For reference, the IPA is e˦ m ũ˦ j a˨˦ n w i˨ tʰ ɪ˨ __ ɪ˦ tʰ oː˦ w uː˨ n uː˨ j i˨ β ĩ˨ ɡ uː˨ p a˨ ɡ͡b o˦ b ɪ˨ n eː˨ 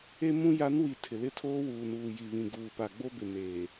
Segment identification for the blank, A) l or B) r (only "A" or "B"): A